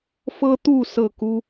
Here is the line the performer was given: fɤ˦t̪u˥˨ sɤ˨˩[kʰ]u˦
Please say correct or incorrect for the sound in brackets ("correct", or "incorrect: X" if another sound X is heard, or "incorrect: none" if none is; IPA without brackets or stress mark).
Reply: incorrect: k